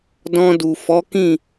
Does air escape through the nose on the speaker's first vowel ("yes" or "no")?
yes